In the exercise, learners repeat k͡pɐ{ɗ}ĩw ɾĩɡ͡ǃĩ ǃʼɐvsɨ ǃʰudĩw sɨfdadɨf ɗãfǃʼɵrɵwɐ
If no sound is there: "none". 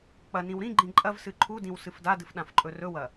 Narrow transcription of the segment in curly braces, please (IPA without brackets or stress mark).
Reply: n